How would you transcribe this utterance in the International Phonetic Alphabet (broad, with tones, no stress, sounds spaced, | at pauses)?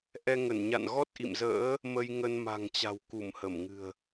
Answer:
ʔ ɛ˧ ŋ ə˧˩ n ɲ a̰˧˨ n ɣ ɔ˦˥ t̚ ʔ ḭ˧˨ m z ə̰ː˧˥ | m ə˧ j ŋ ə˧ n m a̤˨˩ ŋ t͡ɕ a̤˨˩ w k u˧˩ m h ə˧˩ m ŋ ɨ̤˨˩ ə̯